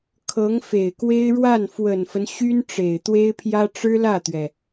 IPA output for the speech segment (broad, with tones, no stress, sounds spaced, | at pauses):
kʰ ɤ˧˥ ŋ f e˨˩ ɪ̯ k w e˥ ɪ̯ ɻ w a˥˩ n f w ə˨˩ n f ə˦ n ɕ y˥ n ʈ͡ʂ e˨˩ ɪ̯ t̪ w e˥ ɪ̯ pʰ j ä˥ ʈ͡ʂ ɻ̩˥ l ä˥˩ t̪ ɥ ɛ˩